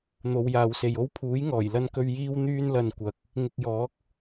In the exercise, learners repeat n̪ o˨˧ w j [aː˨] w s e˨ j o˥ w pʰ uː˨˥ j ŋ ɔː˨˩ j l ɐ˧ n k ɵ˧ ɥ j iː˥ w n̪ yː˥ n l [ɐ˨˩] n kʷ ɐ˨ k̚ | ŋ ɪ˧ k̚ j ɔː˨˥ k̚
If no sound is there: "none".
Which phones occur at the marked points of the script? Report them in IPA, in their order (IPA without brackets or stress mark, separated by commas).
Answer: aː˨, ɐ˧